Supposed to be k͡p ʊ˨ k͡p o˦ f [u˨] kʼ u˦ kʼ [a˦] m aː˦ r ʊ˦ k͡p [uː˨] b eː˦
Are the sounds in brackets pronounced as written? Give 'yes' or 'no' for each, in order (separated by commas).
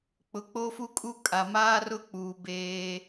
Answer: no, no, yes